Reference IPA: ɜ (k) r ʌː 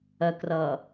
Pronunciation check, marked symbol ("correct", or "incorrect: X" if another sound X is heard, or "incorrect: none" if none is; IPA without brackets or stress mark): correct